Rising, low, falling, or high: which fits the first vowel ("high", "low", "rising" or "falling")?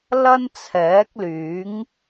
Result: high